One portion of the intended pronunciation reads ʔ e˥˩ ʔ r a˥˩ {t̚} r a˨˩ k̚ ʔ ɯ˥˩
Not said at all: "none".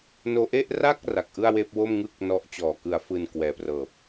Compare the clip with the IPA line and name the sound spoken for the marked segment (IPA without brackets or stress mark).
k̚